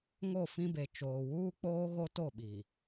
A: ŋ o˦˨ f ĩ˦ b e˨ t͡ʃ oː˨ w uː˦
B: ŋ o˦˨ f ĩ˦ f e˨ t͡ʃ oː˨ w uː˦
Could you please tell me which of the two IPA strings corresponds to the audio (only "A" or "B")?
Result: A